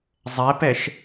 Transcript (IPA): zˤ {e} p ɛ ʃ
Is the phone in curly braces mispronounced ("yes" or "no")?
yes